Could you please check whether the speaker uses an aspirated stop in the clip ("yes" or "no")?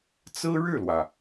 no